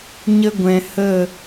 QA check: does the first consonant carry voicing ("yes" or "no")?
yes